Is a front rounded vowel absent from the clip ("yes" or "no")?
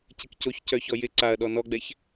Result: no